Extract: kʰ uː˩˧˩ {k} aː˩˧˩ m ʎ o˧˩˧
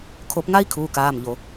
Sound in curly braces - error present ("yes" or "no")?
no